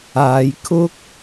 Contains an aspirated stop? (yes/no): yes